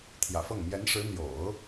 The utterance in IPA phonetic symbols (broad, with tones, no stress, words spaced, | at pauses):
t̪ʰjä̰˨˩fɤ˥˩ŋ mjɛ˧˥nʂɻ̩˧˥ n̪jo̰˨˩˦ʊ̯